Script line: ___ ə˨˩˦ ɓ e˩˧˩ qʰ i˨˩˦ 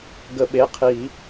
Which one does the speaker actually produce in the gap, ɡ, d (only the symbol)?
ɡ